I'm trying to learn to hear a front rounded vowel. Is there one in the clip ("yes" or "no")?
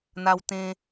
no